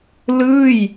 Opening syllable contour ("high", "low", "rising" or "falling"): falling